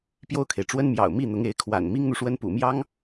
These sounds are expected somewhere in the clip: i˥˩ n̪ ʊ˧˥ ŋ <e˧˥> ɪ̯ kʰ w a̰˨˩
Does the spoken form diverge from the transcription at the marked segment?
no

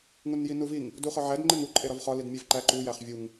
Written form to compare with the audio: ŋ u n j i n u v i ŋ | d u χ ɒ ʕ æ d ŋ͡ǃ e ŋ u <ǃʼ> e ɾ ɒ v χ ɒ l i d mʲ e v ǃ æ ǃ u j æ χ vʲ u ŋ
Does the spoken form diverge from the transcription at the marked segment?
no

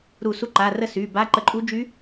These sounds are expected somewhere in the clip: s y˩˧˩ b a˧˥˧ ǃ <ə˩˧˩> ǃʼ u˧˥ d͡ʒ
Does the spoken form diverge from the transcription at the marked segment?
yes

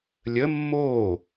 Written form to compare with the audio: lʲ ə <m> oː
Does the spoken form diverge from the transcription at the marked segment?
yes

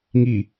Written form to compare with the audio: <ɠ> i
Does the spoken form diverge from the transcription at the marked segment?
yes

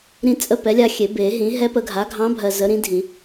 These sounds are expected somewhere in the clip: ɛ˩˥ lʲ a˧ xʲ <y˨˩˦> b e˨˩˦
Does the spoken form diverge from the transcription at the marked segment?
yes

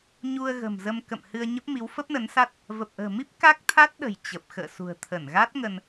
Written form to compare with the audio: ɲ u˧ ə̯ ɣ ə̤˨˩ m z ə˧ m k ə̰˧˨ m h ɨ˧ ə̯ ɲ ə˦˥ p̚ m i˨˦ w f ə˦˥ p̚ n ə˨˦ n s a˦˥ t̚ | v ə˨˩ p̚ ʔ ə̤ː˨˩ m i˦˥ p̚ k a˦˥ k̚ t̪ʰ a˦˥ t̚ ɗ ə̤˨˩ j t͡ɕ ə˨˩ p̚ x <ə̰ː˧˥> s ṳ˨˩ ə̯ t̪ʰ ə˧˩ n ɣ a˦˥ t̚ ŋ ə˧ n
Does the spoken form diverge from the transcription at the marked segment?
yes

